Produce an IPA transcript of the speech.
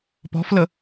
pɔ̤flə

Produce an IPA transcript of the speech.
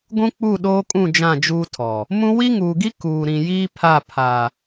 ɡʷũ˦k͡pu˦˨ɗoː˦kʼũ˦˨ d͡ʒã˦˨d͡ʒuː˦tʰɔ˨ | mũ˦ wi˦ŋuː˨ɡi˦ kuː˨ɾĩ˨ jiː˦pʰa˦˨ pʰa˨

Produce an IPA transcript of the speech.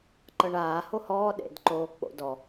ǃɤɳaː hohɔː ɗḛdǃoː k͡po̰ dɔ

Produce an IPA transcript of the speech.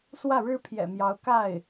swä˥˩ɻɻ̩˥pʰjɛ̰˨˩mjɑ˧˥ʊ̯ ka˥˩ɪ̯

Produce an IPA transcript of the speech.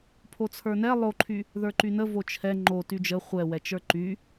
pʰot͡sʰə˞nɛ lˠoǃʰy | ðə˞ǃynə vot͡ʃʰɛ ŋ͡ǃo tyd͡ʒə χʷɛwɛt͡ʃə˞ ǃy

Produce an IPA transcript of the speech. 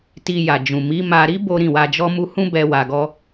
ti˧ja˨d͡ʒũ˨ mi˨˦ma˧ ɾi˦ bo˦ ɾĩ˦˨wa˧d͡ʒɔ˦mu˦ hũ˦bɛ˧ wa˧ɡɔ˦

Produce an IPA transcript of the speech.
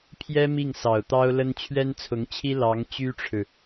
pʰjɛ˥ mi˥˩ŋsɑ˨˩ʊ̯t̪ɑ˥ʊ̯lə˥n t͡ɕʰɥɛ˥nt͡sʰʊ˧˥ŋt͡ɕʰi˥ lɑ˧˥ŋ t͡ɕy˥ʈ͡ʂʰɻ̩˨

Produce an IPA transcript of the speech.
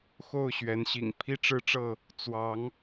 xo˥˨ʊ̯ ɕɥɛ˨˦nɕḭ˨˩ŋ pʰi˦ʈ͡ʂɻ̩˦ʈ͡ʂɤ˥˨ | t͡swɑ˨˦ŋ

